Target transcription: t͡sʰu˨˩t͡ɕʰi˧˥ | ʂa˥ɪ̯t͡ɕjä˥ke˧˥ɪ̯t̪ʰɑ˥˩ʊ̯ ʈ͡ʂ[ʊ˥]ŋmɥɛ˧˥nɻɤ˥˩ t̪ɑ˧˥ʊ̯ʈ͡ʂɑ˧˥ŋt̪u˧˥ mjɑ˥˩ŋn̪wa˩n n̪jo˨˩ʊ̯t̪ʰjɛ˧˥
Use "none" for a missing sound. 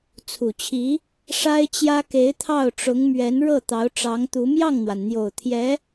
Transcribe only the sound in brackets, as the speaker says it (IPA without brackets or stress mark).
ʊ˧˥